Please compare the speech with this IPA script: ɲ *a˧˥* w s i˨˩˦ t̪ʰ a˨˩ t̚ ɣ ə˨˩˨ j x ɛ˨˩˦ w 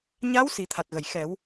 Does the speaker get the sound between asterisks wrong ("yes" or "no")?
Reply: no